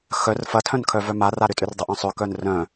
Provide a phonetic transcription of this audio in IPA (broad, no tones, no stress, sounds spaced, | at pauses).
x œ r f ɐ tʰ œ̃ n kʰ œ v œ m a r a ɾ ʏ tʼ ʏ r dˤ ɐ ʔ œ̃ sˤ ʏ k œ n r œ̃